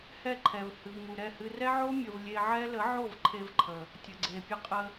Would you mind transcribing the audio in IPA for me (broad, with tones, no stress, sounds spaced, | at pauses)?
h ɛ˦˨ ǃʰ ɛ˨ v h ɨ˨ v m u˨ ɾ ɛ˦˨ h ɨ˧ r ɛ˦ ʕ o˦ mʲ ə˨ v lʲ e˧ ʕ ɛ˦ l ə˨˦ ʕ o˦˨ v ǃʰ e˧ v ǃʰ ə˨ | tʲ ə˨ ɡ͡ǀ e˨ pʲ ə˧ qʼ ə˧